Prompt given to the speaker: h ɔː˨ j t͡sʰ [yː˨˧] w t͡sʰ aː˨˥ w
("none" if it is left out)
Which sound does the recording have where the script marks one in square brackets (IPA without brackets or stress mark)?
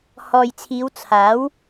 iː˨˧